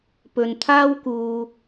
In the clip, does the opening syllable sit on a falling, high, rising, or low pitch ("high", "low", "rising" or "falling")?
low